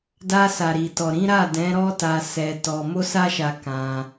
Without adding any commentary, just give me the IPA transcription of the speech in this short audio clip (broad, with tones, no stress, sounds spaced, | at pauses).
d a˧ s a˨ ɾ i˨ t ɔ˨ ɾ ĩ˨˦ ɾ a˦˨ d ɛ̃˨˦ ɾ ɔ˦ t a˧ s ɛ˧ t ɔ˧ m o˦ s a˦ ʃ a˧ k ã˧